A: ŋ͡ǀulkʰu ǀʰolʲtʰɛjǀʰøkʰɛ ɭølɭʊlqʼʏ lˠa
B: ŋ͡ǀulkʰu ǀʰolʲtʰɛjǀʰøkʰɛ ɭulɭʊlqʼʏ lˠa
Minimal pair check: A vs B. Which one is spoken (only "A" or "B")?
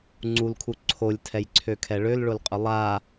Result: A